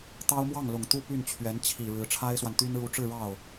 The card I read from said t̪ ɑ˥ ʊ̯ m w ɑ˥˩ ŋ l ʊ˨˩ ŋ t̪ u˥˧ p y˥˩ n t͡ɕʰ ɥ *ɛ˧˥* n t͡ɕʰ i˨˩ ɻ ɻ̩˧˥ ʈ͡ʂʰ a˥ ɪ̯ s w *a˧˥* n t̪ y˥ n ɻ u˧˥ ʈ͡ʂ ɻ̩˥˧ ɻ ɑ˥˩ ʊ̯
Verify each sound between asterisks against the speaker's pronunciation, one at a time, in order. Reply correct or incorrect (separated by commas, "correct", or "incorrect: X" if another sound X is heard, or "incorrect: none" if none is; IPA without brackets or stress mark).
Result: correct, incorrect: a˨